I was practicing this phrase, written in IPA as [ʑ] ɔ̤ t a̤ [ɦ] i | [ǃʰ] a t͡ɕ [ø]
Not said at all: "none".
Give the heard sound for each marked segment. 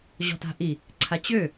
ʑ, ʔ, ǀʰ, ø

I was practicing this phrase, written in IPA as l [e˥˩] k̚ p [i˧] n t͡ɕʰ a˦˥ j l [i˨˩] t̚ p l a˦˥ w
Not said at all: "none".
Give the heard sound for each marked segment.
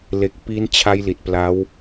e˨˩, i˦˥, i˨˩

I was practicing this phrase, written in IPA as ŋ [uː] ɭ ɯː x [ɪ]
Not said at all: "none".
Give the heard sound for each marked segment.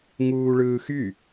uː, y

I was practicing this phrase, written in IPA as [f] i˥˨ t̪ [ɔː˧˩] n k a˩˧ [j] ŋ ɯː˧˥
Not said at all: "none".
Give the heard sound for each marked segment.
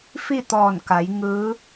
f, ɔː˧˩, j

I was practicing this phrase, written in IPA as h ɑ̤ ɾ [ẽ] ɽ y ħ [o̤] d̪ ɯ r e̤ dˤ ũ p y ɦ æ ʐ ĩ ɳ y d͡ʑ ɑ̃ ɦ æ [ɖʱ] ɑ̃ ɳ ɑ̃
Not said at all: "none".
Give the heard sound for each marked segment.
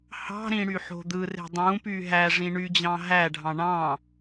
ĩ, o̤, ɖʱ

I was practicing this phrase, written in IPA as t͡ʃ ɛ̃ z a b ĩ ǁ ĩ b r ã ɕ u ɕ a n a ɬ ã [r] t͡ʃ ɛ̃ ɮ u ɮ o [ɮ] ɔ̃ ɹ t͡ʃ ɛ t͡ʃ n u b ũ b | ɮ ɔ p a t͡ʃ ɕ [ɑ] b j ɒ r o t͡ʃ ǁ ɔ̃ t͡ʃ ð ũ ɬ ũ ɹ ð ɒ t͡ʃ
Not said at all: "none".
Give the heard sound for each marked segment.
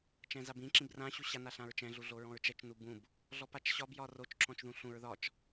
ɹ, ɹ, ɒ

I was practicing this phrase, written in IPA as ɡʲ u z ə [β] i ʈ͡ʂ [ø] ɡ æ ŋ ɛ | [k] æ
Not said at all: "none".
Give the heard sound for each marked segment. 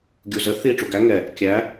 θ, u, kʲ

